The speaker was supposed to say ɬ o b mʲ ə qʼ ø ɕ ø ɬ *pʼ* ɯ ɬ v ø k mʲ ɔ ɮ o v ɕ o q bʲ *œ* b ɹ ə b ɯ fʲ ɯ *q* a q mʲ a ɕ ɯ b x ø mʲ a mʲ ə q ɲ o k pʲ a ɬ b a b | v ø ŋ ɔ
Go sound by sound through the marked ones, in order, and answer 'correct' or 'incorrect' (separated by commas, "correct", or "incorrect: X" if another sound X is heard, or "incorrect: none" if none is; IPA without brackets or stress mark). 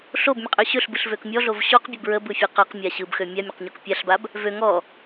incorrect: b, incorrect: ə, correct